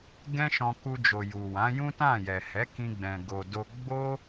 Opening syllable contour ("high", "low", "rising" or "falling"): high